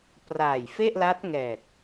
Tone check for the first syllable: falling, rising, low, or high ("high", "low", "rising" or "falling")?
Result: low